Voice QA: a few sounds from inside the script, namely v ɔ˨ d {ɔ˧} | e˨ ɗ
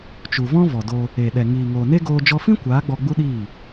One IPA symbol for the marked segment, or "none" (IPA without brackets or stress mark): o˧